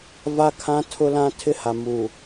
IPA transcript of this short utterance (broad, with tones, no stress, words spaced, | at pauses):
va˦kʰã˦tʰʊ˦lã˦ tʰɪ˦ha˨muː˨